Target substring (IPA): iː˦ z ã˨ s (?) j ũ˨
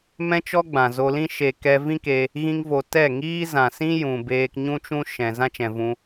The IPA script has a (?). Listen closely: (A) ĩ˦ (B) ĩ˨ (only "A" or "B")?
A